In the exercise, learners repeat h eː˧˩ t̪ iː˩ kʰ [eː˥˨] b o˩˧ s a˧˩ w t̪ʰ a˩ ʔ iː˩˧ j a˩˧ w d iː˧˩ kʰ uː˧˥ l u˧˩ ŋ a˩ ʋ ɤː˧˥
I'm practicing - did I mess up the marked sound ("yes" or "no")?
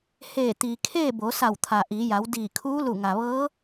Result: no